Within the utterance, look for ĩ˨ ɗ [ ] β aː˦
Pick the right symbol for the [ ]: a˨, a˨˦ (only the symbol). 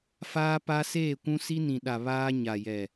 a˨